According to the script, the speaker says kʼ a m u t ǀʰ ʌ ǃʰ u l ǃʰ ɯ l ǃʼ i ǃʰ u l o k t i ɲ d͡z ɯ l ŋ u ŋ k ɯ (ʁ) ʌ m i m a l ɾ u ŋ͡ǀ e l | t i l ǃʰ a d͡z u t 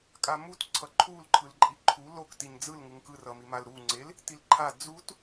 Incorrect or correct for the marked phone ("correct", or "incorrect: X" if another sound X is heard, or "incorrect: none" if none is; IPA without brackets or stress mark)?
incorrect: r